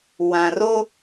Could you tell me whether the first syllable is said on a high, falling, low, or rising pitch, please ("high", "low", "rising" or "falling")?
low